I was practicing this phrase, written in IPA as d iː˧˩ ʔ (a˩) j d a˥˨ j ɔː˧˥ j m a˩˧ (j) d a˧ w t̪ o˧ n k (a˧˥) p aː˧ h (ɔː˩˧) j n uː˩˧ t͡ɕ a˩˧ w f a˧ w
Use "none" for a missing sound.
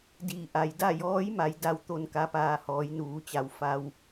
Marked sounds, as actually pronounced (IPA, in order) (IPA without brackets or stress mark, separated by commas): a˩, j, a˧˥, ɔː˩˧